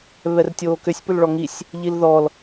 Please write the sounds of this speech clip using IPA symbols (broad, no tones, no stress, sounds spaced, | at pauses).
β ɛ r tʲ oː k ʏ sʲ p ʏ l ɭ ɔ ŋ i sʲ | ʎ i l ð ɔ l